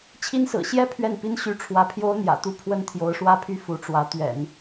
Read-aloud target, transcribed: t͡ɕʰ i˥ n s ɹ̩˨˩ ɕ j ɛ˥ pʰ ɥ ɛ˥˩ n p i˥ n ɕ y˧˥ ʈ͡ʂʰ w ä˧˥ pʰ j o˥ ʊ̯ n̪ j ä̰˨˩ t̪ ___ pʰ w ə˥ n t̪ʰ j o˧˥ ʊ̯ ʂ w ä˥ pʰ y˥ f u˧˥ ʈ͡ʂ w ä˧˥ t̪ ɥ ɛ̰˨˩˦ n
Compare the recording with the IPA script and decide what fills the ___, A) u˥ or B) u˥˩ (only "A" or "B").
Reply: A